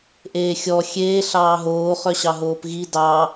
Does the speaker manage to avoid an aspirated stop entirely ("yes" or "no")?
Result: yes